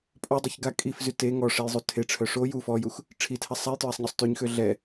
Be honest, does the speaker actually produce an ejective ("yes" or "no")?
yes